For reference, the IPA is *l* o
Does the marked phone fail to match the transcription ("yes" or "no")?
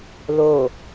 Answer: no